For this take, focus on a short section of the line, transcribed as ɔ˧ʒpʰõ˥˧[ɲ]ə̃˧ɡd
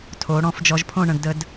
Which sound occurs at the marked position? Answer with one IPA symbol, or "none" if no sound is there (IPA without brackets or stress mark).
ɳ